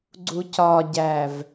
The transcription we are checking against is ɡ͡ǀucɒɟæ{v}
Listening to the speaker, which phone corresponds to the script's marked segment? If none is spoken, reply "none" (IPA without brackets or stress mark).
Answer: v